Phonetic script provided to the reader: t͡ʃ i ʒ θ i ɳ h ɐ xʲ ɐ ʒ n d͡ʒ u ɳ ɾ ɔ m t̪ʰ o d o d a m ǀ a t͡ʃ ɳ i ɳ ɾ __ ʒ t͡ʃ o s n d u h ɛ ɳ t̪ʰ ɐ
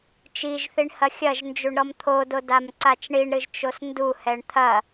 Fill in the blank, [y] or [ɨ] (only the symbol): ɨ